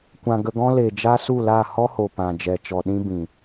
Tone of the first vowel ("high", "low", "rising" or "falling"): low